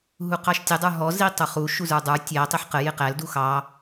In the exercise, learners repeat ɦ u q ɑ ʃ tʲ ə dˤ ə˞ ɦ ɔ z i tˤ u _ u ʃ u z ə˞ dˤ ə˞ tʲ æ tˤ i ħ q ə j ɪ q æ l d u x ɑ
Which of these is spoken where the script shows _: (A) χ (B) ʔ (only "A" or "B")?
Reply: A